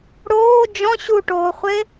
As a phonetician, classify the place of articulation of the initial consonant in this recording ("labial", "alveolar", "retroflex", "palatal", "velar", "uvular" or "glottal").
retroflex